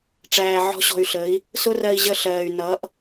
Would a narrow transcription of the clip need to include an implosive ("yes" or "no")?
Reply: no